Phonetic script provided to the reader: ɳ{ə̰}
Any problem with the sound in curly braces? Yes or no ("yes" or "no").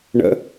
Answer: no